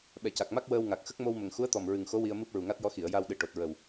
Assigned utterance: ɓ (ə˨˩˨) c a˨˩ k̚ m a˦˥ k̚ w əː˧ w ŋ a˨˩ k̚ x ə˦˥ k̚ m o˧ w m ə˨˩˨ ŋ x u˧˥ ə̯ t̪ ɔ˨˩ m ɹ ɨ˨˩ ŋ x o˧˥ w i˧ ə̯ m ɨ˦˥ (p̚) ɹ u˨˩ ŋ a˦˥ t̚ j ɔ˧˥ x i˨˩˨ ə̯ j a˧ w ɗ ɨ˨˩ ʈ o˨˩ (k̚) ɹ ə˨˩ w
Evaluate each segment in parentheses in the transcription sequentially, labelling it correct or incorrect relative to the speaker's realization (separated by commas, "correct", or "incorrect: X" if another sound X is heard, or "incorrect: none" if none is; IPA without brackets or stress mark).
incorrect: ɛ˨˩˨, correct, incorrect: t̚